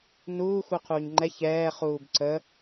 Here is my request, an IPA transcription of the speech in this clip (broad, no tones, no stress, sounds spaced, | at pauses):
n uː x u qʰ uː ɲ ŋ͡ǃ ɛ ç ɛː χ uː b ǀ ə